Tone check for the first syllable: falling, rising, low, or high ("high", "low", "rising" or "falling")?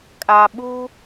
low